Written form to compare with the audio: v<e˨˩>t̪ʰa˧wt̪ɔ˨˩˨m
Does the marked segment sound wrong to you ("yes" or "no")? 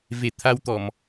no